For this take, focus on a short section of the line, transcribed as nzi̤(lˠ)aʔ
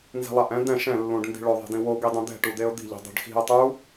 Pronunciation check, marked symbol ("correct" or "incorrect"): correct